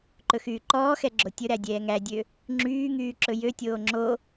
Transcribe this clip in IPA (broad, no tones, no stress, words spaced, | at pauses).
ǃɵxyːǃɔːxɛ ɡ͡ǁotʲɵɾæ dʲɛːŋædʲø | ŋ͡ǁyːŋyː ǁɵjøtʲoː ŋ͡ǁo